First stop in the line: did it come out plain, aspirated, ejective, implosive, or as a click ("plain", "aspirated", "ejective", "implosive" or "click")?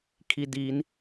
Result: aspirated